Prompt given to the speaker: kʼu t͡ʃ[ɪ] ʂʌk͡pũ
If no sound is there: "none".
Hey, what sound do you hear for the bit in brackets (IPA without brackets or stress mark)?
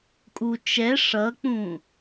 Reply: ɛ